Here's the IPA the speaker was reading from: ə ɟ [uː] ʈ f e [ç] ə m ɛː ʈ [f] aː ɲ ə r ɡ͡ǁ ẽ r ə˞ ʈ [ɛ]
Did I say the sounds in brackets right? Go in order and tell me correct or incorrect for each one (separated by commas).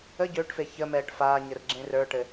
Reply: incorrect, correct, correct, incorrect